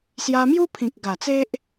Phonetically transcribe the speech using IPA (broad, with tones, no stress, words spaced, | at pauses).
sja˧mju˦pʰĩ˨k̚ɡa˨˩ t͡se˦ʔ